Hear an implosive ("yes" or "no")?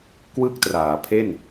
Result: no